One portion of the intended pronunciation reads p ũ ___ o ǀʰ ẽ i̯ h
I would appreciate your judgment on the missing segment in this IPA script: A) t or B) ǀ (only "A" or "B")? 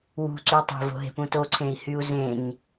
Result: A